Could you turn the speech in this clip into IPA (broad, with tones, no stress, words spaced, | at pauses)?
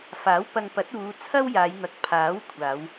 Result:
faː˨˥wpɐ˧ŋpɐ˨˥t̚ uː˨˧ t͡sʰɐ˥wjaː˨˧jn̪ɐ˨k̚ pʰaː˨˥wkʷʰaː˨˧w